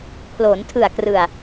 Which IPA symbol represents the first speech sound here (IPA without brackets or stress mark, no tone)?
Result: pʰ